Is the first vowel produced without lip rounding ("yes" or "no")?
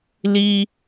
yes